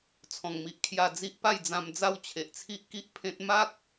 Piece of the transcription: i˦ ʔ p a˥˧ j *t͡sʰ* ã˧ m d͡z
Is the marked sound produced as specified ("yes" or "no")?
no